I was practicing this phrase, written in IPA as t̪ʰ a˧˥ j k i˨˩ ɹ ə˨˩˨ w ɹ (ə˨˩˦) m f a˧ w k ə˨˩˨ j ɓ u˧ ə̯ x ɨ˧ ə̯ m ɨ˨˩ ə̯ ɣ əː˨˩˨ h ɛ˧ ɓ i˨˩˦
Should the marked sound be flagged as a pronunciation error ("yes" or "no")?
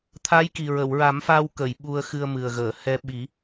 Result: yes